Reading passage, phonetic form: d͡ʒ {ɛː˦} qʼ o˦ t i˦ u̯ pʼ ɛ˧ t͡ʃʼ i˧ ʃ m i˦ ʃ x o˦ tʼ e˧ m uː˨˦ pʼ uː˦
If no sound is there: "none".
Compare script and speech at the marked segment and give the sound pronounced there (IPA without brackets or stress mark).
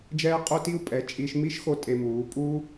ɛː˦